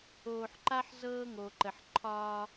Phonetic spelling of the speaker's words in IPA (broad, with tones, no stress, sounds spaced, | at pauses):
oː˨ ħ ǃ a˦ ħ z ɤː˦ ŋ o˨ ǃ ə˨ ħ ǃʰ ɒː˦